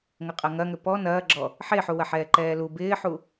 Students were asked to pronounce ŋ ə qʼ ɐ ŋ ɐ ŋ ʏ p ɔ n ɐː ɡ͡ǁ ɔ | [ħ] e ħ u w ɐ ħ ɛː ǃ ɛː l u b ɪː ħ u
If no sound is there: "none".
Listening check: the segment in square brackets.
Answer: ħ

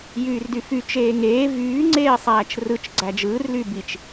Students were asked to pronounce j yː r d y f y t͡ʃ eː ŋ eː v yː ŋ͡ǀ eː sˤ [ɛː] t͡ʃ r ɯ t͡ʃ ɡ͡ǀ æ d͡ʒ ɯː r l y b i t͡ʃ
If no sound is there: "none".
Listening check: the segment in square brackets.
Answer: æː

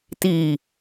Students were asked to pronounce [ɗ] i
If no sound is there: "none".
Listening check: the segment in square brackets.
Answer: t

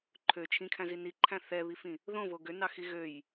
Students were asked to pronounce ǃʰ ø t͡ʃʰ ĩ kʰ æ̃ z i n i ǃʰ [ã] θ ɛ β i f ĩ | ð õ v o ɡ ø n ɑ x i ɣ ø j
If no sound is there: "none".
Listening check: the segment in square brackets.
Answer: æ̃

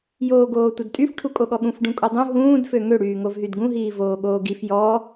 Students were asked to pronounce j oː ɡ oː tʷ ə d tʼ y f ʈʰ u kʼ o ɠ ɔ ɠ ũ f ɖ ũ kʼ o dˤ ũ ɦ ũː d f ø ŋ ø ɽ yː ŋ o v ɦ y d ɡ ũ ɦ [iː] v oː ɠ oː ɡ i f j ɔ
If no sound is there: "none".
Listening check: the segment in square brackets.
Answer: iː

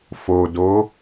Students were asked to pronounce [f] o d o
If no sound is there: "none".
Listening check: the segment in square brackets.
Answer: f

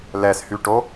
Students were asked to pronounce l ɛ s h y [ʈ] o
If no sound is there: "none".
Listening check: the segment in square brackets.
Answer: ʈ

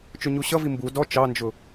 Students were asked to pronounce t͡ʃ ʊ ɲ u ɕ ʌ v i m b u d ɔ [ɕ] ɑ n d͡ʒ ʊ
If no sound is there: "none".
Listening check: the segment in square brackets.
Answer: t͡ʃ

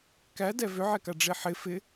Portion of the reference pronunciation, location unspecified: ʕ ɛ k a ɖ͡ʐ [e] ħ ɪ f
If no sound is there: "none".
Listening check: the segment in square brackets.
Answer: e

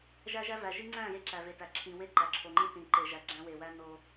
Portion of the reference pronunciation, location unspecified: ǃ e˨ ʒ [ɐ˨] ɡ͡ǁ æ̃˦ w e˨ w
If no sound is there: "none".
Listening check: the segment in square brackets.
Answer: æ˨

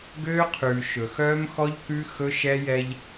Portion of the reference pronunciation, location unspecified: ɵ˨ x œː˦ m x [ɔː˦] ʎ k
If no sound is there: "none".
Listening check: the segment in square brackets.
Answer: ɔ˦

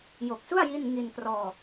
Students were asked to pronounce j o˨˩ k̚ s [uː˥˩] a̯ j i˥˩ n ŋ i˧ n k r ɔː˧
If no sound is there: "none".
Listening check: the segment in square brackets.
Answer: u˥˩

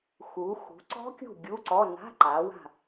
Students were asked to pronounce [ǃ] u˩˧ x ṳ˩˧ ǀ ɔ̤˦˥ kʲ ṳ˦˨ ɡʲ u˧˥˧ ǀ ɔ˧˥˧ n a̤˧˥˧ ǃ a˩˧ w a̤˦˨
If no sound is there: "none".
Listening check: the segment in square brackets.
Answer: x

